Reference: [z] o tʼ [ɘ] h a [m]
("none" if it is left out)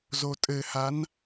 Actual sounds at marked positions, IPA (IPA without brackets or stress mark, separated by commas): z, ɘ, n